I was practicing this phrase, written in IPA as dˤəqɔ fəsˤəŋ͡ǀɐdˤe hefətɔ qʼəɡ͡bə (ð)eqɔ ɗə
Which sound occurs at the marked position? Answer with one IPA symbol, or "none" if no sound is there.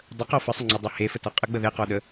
ð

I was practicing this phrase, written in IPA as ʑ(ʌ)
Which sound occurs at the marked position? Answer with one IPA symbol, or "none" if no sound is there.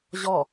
ɔ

